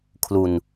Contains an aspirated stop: yes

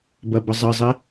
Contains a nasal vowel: no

